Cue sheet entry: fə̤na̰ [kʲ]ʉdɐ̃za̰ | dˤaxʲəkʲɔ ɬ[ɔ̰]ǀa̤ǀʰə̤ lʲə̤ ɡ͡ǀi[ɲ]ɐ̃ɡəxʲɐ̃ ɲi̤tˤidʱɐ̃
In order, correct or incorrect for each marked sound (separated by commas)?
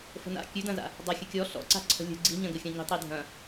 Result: correct, correct, correct